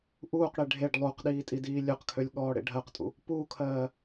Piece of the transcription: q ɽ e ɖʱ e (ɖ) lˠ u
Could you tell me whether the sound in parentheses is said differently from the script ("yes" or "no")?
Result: no